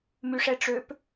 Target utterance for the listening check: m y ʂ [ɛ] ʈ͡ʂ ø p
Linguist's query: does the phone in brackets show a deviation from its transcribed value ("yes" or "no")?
no